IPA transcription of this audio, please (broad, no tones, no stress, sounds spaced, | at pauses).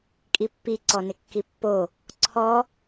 kʼ i pː i ǀ ɔ n ɪ kː i pː o | ǀʰ ɔ